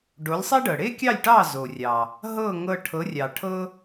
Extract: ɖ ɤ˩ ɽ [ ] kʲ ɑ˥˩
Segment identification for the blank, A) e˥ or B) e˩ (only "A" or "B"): A